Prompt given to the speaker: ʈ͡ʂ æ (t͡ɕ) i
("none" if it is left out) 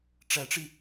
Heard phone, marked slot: ʈ͡ʂ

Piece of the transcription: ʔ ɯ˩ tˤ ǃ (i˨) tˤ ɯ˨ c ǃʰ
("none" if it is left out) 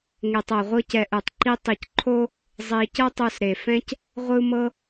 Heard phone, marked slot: i˦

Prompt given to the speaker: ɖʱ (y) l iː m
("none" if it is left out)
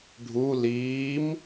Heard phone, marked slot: u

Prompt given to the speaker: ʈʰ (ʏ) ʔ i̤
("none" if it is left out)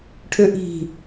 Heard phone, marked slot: ʏ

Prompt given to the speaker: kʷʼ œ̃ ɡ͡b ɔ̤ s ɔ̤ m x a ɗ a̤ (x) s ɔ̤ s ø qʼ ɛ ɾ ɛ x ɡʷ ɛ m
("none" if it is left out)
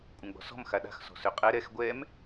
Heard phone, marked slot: x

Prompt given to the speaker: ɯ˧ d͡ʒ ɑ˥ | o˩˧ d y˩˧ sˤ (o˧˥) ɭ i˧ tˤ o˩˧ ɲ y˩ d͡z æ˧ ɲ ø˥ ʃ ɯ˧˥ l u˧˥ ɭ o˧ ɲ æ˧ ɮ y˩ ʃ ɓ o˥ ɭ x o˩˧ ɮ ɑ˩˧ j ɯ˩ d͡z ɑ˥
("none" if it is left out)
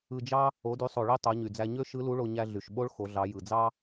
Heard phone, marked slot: o˩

